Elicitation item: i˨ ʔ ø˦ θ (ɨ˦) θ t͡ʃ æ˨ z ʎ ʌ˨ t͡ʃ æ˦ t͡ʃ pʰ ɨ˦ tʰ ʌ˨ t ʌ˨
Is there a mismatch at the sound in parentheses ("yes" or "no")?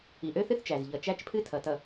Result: no